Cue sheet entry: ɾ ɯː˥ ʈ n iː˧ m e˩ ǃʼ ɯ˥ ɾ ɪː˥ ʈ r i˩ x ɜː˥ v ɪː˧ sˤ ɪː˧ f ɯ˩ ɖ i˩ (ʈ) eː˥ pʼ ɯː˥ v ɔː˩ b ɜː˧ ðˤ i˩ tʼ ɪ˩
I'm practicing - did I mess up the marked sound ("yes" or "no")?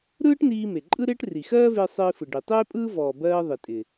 yes